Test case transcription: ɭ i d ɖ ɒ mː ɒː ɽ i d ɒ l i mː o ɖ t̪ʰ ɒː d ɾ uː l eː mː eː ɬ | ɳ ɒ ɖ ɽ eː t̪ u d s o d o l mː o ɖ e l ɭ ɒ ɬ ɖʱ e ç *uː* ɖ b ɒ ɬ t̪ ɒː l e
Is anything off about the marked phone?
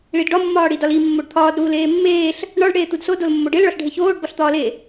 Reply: yes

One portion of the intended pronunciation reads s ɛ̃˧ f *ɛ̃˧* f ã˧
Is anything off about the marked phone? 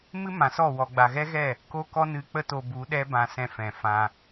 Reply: yes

